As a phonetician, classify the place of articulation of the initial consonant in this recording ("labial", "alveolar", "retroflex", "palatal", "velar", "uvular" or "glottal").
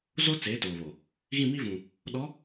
alveolar